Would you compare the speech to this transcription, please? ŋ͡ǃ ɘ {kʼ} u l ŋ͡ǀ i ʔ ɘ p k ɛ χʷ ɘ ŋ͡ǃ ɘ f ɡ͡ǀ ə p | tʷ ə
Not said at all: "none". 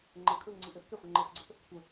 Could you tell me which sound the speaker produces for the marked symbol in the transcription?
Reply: kʼ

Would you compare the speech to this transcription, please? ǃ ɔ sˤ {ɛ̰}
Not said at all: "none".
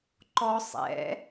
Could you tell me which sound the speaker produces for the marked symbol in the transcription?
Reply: ɛ̰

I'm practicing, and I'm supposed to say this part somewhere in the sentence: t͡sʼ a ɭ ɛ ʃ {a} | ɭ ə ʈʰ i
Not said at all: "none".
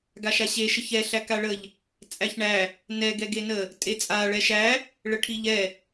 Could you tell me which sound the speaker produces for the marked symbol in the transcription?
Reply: æ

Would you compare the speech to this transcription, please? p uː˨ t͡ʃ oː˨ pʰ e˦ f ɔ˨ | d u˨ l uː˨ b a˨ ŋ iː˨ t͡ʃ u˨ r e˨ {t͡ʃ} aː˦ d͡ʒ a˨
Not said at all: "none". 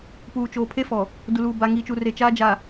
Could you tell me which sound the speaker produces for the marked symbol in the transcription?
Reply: t͡ʃ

